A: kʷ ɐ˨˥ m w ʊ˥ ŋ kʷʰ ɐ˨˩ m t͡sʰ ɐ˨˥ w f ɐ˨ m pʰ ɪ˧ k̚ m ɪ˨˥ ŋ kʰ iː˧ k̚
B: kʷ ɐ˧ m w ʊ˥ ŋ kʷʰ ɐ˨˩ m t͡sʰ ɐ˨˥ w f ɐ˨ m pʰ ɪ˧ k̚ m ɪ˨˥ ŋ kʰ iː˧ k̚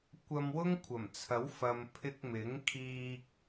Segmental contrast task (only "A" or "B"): B